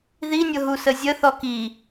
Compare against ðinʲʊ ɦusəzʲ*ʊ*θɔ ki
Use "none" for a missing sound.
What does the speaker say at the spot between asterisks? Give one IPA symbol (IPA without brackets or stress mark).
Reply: ə